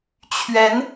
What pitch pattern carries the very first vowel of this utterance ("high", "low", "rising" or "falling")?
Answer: rising